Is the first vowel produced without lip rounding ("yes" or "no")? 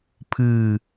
yes